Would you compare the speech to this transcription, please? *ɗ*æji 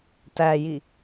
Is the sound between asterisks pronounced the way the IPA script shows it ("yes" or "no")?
no